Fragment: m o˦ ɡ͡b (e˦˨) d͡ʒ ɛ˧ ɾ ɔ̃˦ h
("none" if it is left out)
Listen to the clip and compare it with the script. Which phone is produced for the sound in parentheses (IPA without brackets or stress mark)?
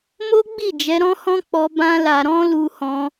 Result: i˦˨